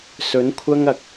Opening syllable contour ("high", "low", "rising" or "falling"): rising